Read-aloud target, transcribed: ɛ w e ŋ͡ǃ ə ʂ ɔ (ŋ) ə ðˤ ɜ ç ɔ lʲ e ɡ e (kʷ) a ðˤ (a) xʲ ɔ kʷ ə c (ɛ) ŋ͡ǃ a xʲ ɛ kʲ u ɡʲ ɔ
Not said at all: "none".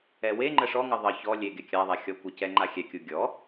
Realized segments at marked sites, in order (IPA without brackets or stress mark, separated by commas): ŋ, kʲ, a, ɛ